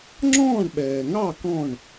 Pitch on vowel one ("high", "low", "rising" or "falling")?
falling